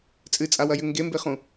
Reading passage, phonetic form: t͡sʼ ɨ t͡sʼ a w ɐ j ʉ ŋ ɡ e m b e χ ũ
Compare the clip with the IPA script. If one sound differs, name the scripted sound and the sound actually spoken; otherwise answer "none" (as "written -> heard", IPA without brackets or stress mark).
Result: none